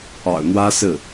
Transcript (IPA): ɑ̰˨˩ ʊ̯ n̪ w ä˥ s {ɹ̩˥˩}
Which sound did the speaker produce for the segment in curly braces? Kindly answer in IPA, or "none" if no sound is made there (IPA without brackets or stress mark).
ɹ̩˥˩